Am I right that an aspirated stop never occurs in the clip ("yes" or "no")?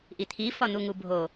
no